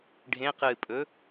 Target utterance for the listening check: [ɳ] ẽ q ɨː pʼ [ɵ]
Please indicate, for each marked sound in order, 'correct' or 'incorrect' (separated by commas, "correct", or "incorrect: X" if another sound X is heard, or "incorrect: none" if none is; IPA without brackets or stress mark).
incorrect: ɖʱ, correct